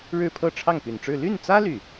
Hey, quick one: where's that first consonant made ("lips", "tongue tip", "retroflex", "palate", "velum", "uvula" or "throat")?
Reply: retroflex